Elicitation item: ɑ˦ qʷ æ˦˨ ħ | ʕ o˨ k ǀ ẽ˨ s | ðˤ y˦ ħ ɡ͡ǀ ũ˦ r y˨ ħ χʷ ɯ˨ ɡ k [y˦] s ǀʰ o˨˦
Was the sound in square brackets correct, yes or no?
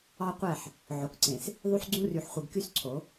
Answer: yes